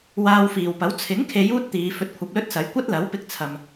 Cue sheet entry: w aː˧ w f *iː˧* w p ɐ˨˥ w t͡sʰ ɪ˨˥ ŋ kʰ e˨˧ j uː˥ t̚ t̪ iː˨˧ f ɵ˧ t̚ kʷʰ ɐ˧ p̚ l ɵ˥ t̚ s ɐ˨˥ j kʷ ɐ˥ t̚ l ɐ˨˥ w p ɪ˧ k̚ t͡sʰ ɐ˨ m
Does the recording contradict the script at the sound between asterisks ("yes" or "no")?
yes